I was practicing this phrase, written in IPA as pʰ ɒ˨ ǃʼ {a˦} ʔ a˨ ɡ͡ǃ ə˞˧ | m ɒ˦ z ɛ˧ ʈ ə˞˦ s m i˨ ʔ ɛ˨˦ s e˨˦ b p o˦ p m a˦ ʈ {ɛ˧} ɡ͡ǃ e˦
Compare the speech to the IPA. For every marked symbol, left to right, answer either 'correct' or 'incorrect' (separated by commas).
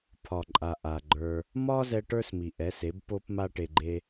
incorrect, incorrect